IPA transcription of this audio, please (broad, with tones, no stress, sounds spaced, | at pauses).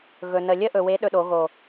ɣ ɵ˨ n ə˨ lʲ ə˦ ʔ ɵ˨ w e˨˦ ɗ ɵ˧ ɗ o˨˦ ɣ o˨